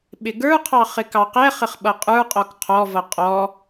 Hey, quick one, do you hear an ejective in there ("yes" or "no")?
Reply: yes